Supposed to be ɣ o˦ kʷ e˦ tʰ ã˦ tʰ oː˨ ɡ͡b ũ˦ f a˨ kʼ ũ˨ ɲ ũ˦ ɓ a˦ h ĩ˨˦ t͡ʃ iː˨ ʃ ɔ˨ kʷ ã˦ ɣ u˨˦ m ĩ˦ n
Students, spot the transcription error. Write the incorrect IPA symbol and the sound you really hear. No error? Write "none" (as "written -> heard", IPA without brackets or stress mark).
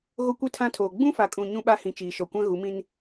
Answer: none